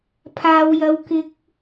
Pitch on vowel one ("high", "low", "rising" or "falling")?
high